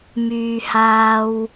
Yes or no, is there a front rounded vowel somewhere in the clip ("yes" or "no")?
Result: yes